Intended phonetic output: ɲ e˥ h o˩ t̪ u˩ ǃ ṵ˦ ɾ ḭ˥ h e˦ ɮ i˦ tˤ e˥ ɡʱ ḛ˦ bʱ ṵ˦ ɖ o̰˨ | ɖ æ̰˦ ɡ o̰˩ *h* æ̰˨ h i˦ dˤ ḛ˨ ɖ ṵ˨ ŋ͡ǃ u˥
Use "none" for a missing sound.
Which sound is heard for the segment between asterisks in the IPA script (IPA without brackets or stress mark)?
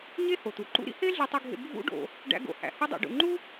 h